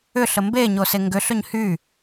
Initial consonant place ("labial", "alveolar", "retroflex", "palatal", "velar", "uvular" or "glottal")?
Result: alveolar